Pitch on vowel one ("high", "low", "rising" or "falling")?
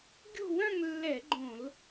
falling